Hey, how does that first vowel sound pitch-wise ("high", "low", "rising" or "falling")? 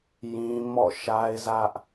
high